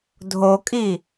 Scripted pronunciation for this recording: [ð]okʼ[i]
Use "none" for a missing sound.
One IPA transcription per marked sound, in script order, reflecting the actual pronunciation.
dʱ, i

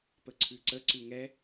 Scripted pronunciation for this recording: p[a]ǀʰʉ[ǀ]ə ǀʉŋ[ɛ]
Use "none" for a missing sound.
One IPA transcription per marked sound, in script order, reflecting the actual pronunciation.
ə, ǀ, ɛ

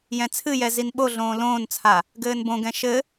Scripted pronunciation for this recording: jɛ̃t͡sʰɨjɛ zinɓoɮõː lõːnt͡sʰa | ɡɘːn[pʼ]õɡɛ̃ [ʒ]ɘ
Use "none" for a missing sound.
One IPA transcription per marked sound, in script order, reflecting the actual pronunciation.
b, ʃ

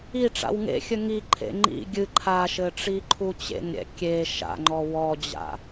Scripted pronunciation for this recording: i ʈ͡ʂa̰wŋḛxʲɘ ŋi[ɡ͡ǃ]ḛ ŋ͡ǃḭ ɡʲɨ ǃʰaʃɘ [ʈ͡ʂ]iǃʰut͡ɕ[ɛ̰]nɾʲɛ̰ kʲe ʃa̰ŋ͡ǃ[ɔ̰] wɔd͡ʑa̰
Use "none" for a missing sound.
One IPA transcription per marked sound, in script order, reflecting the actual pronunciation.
ǃʰ, ʈ͡ʂ, ḛ, ɔ

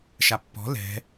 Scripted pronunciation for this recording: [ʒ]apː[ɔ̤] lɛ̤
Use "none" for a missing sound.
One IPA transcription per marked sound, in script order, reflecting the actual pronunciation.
ʃ, ɔ̤

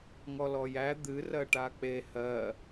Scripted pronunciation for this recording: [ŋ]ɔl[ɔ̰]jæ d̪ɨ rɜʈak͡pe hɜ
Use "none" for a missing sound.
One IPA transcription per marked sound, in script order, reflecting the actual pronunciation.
ŋ, ɔ

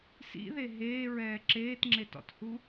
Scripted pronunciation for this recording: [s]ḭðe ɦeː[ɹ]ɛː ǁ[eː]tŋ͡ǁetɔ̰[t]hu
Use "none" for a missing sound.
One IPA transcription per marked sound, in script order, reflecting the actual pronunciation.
s, ɹ, eː, t

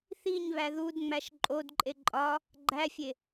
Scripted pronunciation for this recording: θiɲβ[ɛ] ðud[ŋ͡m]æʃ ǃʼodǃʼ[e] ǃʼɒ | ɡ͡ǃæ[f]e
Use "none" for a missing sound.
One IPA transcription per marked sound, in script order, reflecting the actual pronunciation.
æ, ŋ͡m, e, fʲ

